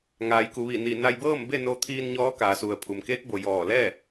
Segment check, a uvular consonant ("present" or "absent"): absent